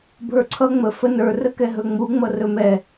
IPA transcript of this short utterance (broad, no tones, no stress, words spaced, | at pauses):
bʱə˞ǀʰʌ ŋ͡mə fənə˞ rəkɛɦɵŋ͡mu ŋ͡mʌrɵmɛ